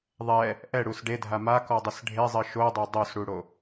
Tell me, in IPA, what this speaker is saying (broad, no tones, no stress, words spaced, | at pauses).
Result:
ðˤɛ | ʔɛɽus ɖedʱa makɔdˤɨs ɖʱezˤɘ ʃodˤe dˤosɽuɽo